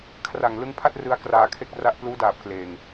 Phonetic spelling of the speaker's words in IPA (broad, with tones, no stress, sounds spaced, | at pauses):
kʰ r a˨˩ ŋ l ɯ˦˥ ŋ pʰ a˥˩ t̚ r ɯ˧ a̯ k r aː˧ kʰ e˥˩ k̚ r a˥˩ ʔ p l uː˦˥ d aː˨˩ p̚ k l eː˨˩ ŋ